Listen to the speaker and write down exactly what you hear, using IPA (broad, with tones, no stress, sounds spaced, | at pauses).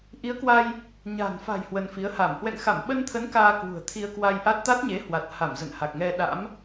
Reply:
ʔ i˨˦ ə̯ k w a˧ j | ɲ a̤˨˩ n f a̤˨˩ j h w ə˧ n f i˨˦ ə̯ h a˧˩ m h w ɛ̰˧˨ ŋ x a˧˩ m ɓ ə˧ n t̪ʰ ə˨˦ n k aː˧ k w ṳ˨˩ ə̯ t̪ʰ i˧ ə̯ k w a˧ j ʔ a˦˥ t̚ t̪ a˦˥ t̚ ɲ e˨˦ h w a˨˩ t̚ h a˧˩ m z ə̰˧˨ n h a˨˩ k̚ ŋ ɛ˧ ɗ a̰˧˥ m